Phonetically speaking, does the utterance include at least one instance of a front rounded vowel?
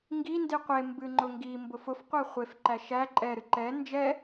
no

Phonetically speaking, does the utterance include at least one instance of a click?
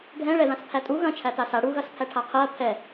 no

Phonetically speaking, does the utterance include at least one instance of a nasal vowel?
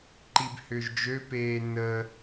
no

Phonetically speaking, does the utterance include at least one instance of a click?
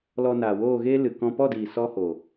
no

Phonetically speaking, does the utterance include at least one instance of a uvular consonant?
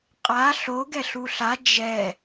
yes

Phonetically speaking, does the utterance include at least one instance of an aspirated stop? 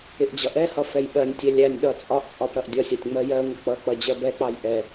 no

